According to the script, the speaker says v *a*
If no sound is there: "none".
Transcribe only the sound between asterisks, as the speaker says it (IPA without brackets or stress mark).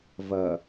ɐ